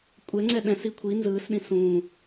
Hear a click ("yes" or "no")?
yes